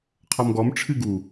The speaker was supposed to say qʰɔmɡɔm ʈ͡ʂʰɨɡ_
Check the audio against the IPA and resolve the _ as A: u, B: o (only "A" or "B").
A